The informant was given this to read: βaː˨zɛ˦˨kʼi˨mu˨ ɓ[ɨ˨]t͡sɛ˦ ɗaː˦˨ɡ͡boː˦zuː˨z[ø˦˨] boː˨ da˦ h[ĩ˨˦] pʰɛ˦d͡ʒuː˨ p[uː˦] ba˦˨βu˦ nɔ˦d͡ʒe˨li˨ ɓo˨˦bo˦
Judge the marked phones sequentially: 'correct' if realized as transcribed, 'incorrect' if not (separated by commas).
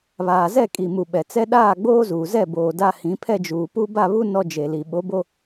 incorrect, incorrect, correct, incorrect